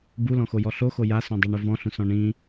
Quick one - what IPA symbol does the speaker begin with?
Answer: b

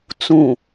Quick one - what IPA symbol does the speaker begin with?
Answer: t͡s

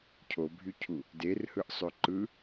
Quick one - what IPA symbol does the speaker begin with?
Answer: cʰ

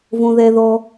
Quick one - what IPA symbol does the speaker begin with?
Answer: v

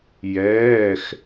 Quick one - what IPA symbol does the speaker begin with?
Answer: j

